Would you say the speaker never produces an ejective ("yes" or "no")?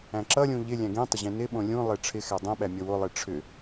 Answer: yes